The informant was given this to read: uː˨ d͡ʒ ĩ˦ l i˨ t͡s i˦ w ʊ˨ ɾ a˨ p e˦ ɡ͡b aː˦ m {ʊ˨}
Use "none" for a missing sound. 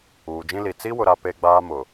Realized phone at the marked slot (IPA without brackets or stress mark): ʊ˨